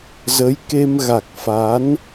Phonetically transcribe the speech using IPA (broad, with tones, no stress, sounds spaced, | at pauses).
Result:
z ə˨˦ j k e˧ m ɣ a˨˩ k̚ f a˨˦ n